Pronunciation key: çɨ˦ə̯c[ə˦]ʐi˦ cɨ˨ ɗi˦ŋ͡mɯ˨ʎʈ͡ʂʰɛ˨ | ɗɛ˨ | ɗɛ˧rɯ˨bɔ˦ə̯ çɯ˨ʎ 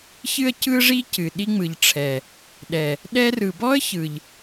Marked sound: incorrect: ɯ˦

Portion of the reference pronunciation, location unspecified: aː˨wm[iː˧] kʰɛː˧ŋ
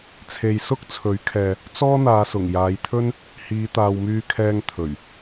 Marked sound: incorrect: yː˧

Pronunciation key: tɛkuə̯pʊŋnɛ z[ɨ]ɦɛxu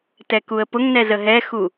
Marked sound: incorrect: ə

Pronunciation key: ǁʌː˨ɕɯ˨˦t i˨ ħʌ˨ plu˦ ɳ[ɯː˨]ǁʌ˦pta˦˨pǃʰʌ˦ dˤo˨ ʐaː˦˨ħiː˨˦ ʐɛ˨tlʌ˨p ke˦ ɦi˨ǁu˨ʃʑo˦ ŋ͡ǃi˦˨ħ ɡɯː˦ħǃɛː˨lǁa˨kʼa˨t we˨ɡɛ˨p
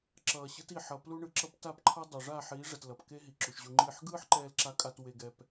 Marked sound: incorrect: ɯ˨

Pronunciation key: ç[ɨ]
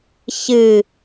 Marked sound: correct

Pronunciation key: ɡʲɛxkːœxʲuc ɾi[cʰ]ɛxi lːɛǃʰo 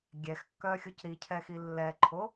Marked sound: correct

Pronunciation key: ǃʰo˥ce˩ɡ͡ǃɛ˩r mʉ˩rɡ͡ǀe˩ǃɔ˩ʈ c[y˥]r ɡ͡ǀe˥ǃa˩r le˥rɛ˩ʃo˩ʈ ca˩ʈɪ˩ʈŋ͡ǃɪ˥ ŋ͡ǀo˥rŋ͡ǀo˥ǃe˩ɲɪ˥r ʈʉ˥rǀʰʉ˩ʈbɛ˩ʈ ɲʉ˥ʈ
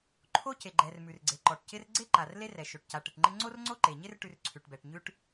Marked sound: incorrect: ɪ˥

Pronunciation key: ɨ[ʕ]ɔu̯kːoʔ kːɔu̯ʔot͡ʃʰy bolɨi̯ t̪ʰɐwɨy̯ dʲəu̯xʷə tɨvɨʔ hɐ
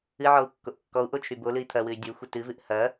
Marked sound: correct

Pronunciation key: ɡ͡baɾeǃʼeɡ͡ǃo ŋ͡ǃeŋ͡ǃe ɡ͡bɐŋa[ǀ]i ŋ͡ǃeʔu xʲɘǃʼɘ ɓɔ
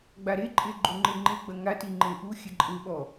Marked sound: incorrect: t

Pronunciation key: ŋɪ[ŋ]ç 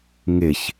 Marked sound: incorrect: none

